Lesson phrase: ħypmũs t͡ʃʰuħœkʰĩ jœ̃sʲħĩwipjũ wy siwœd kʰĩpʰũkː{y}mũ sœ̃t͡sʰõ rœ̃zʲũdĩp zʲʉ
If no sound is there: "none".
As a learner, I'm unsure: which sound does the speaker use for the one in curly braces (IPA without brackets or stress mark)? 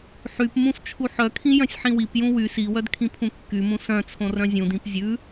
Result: y